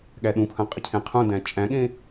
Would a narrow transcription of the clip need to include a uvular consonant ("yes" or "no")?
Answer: yes